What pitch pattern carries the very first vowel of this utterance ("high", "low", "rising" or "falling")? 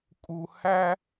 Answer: high